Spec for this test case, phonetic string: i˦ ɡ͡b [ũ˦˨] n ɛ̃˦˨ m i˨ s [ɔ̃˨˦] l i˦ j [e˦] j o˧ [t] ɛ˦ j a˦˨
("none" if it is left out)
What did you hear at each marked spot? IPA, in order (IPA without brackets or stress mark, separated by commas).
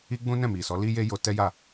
ũ˦, ɔ˨˦, e˦, t